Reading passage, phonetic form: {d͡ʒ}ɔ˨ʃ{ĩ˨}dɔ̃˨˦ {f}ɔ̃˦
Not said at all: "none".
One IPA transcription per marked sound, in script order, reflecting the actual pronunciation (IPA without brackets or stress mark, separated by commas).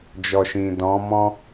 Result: d͡ʒ, ĩ˨, m